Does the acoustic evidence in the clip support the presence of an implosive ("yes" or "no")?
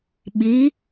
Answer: yes